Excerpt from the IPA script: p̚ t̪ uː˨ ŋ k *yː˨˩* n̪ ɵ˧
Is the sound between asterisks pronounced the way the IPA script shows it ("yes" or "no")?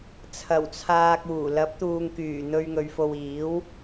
yes